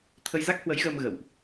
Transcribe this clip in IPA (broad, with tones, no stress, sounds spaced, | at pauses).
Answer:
t̪ʰ ə˧ j z a˦˥ k̚ h w ə˨˦ j ɣ əː˧ m ɣ ə̰˧˨ w ʔ